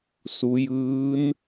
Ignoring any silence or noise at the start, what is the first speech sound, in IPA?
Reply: s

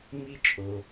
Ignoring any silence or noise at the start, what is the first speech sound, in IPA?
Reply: m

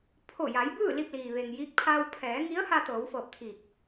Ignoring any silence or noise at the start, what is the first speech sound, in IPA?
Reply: pʰ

